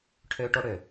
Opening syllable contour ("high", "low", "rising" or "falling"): high